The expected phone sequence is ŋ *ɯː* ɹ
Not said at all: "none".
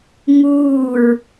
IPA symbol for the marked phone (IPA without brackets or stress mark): uː